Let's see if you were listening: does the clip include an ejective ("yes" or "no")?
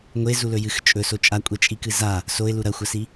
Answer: yes